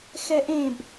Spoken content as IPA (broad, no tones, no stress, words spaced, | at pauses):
xɛʔẽb